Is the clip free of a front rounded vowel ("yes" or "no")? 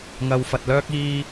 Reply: no